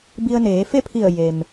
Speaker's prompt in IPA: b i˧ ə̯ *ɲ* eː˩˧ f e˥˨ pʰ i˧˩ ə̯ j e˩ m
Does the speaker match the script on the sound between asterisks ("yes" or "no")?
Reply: no